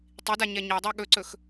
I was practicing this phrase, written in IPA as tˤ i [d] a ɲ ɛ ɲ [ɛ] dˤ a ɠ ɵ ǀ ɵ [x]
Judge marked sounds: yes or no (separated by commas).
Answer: yes, yes, yes